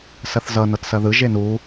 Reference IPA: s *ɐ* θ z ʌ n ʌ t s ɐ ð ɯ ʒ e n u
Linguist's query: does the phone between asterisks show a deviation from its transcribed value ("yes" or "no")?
no